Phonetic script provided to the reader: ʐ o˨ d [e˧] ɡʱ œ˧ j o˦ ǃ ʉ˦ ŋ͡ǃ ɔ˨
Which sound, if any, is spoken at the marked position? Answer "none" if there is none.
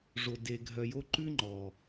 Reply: e˧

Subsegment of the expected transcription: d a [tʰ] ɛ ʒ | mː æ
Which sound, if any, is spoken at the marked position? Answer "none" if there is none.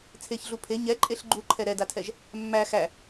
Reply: tʰ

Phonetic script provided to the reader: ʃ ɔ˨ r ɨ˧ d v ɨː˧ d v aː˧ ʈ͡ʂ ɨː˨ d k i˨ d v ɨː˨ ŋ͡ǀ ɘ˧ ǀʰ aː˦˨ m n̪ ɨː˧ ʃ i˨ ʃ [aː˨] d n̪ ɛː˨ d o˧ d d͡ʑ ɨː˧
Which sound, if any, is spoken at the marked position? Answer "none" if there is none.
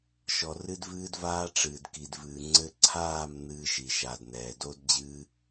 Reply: aː˨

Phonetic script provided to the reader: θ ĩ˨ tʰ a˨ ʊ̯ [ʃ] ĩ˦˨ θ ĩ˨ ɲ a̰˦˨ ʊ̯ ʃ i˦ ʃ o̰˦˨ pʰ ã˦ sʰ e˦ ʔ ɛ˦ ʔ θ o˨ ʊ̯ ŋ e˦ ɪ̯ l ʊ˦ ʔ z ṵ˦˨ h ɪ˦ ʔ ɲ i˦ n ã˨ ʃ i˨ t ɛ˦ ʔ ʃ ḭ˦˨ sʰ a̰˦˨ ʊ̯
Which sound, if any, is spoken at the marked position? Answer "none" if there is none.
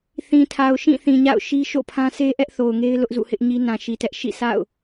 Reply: ʃ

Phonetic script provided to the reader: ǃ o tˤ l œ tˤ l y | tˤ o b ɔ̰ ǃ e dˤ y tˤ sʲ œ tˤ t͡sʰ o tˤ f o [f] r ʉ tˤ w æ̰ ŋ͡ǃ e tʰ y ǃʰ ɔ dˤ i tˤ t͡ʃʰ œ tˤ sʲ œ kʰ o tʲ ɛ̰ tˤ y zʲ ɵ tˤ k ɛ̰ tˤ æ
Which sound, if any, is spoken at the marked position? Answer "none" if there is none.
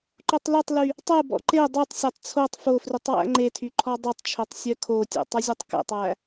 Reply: f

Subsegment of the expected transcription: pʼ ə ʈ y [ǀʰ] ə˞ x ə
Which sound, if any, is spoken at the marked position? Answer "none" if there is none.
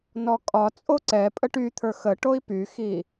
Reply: t̪ʰ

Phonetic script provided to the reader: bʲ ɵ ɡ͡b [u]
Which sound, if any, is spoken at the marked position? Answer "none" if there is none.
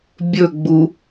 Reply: u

